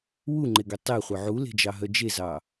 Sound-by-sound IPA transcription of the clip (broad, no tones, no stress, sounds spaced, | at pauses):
w u ŋ͡ǃ e ɡ ø tˤ e χʷ œ ʕ u l e̤ d͡ʒ ɑ ɦ œ d͡ʒ e z ɑ